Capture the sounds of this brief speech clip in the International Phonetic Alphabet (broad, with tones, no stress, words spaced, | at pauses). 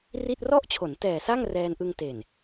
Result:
ri˥˩t̚ rɔ˥˩ʔt͡ɕʰo˩˦n tɛː˨˩sa˥˩ŋ rɛː˧nʔɯ˧ŋ te˨˩n